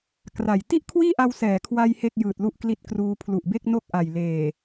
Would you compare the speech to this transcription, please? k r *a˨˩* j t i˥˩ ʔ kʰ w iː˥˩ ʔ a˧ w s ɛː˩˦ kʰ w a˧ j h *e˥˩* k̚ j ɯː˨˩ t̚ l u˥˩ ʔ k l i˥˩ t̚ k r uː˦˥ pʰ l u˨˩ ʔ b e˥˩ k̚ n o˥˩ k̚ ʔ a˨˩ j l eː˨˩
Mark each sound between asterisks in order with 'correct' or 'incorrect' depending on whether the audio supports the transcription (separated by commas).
correct, correct